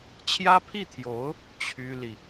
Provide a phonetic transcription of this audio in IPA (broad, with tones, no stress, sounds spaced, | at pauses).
t͡ɕʰ j ä˥ pʰ i˥˩ t̪ʰ j o˧˥ ʊ̯ | t͡ɕʰ y˥ l i˨